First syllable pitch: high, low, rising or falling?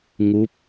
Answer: rising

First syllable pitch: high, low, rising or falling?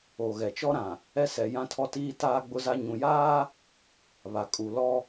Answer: low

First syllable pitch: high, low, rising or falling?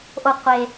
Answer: low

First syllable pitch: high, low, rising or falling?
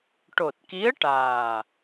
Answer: low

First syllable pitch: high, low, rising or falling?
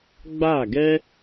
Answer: falling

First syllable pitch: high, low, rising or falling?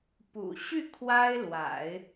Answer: low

